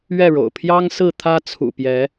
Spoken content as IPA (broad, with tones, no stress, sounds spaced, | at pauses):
ɥ ɛ˥˨ ɻ o̰˨˩ ʊ̯ pʰ j ɑ˦ ŋ s ɹ̩˥˨ t̪ʰ ä˦ t͡sʰ ṵ˨˩ p j ɛ˨˦